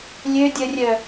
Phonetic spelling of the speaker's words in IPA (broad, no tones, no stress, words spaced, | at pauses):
lʲø dʲərʲœ